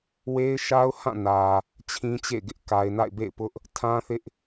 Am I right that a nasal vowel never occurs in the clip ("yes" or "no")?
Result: no